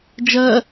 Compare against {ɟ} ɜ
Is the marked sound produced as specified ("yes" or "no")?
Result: no